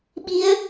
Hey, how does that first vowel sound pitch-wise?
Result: rising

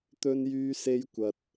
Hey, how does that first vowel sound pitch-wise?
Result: high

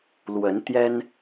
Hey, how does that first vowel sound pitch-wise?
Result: rising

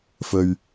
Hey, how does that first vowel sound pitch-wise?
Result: low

